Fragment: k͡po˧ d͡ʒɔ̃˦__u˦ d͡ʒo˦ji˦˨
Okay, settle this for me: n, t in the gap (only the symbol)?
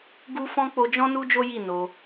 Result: n